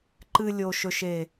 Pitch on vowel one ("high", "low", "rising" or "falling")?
low